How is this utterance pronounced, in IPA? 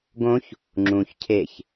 ɡ õ ç | ŋ͡ǁ ũ ç cʰ e ç

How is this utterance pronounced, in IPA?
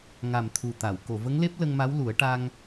ŋ a˨˩ m t̪ʰ u˨˩ t̪ a˨˩˨ w k o˨˩˨ v ə˧˥ ŋ l e˦˥ p̚ l ə˧ ŋ m a˧˥ w l u˨˩˦ ə̯ ʈ a˧ ŋ

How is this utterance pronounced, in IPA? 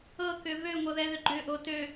ɤ k ʏ v ø ŋʷ ɤ ð ɛ ð ʏ ɡ͡ǃ ʏ ʔ o t ø

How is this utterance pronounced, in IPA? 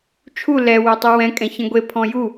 t͡ʃʰ u l ɛ w œ tˤ u w ɛ̃ kʼ ɛ̃ ç ɛ̃ ɡʷ e pʰ ɔ̃ j u

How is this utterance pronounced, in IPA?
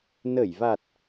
n ə˧˩ j v a˨˩ t̚

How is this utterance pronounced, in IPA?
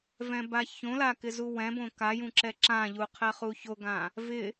v ɛ̃ b a ç õ l a k ɪ z u w ɛ̃ b õ k a j ũ ǁ ɛ ǁ ã ʎ u qʰ ɛ χ u ç o ɡ ã | v ɪ

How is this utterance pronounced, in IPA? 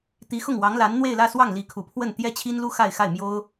t̪ i˧˥ x ʊ˥˩ ŋ w ɑ˧˥ ŋ l a˧˥ n n̪ w e˥˧ ɪ̯ l ä˥˧ s w ɑ˥˩ ŋ l i˧˥ kʰ u˨˩ pʰ w ə˥˩ n t̪ j ɛ˥ t͡ɕʰ i˥ n l u˥ x a˥˧ ɪ̯ x a˥˩ ɪ̯ m j o˥ ʊ̯

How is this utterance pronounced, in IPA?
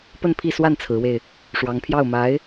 p ə˥˧ n pʰ i˥˧ s w a˥˩ n t͡sʰ ɹ̩˧˥ w e˧ ɪ̯ | ʂ w ɑ˧˥ ŋ pʰ j ɑ˥˩ ʊ̯ m a˧˥ ɪ̯

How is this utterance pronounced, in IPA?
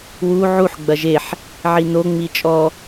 w u ʕ u ħ ɡ͡b ɐ ʒ e ħ | ʕ i n o ŋ͡m i t͡ʃʼ ɔ

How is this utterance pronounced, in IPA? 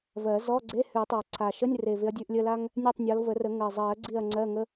v ɜ˨˩˦ z ɔ˧˥˧ ɡ͡ǀ e˧˥˧ h ʉ˨˩˦ tˤ a˨˩ ǀʰ a˨˩ ʃ ə˧˥˧ nʲ r e˨˩ v ɪ˨˦ ɐ̯ dʲ ʉ˧˥˧ ʔ lʲ ə˧˥˧ l a˥ ŋ | nʲ e˦˨ tˤ nʲ ɔ˨˦ l v ə˨˩˦ r ə˨˩˦ ŋ ɜ˨˩ zˤ ɜ˨˩˦ ɡ͡ǀ i˦˨ ɐ̯ ŋ͡ǀ ɜ˧˥˧ ŋ ə˧˥˧

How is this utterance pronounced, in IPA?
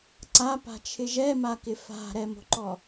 ǀ a p a̤ t͡ʃʰ ɪ ʒ ɛ m a k ɪ f a̤ ɾ ɛ m o̤ ǃ ɔ

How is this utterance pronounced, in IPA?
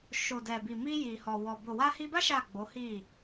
ʃ o˨ d ɛ˨ b i˨ m i˧ j i˨ h ɔ˨ w ɔ˨ b o˨ w a˧ h i˧ b a˦ ʃ a˦˨ ɡ͡b o˨˦ h i˦˨

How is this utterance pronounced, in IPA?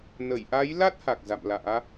n ə˧˩ j ʔ a˨˦ j l a˦˥ t̚ h a˨˩ k̚ z a̰˧˨ m l a̰ː˧˥

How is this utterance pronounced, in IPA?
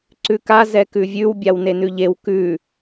ǀ ʉ k a z ɛ k ʉ vʲ ʉ w bʲ a w n e n ʉ ʎ e w k ʉ

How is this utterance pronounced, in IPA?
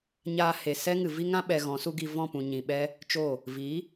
ɲ aː˧ h e˨ s ɛ˦ ŋ ɨ˨ v i˧ ŋ ã˧ ɓ ɛ˨ ɣ ɔ̃˨˦ s u˦ ɡ i˧ v ɔ̃˦˨ p ũ˨ ɲ ĩ˨ ɓ ɛ˦ | t͡ʃ o˦˨ | v i˨˦

